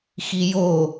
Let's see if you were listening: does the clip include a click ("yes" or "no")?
no